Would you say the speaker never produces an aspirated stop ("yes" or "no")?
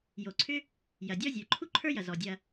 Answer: no